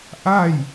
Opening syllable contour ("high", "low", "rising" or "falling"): falling